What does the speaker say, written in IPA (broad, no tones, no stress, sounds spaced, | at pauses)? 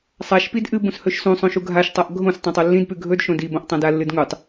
sˤ a ʃ p i d ʔ ɨ b ũ s h ɵ ʃ s ũ sˤ õ ʃ u ɡʱ a ʃ tˤ a ʔ ɡʱ õ s tˤ õ tˤ o lː ĩ d p ʉ ɡʱ ɵ d ʃ õ d i b õ ʔ tˤ ã d a lː ɨ d ŋ u tˤ